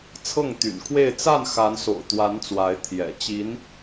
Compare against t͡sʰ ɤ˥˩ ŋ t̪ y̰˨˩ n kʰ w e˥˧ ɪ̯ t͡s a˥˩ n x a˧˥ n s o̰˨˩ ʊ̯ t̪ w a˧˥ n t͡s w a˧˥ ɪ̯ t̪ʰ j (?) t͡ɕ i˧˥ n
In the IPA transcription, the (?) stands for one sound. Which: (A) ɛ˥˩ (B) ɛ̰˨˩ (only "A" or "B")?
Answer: B